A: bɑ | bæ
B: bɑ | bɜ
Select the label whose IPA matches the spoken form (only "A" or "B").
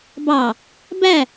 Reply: A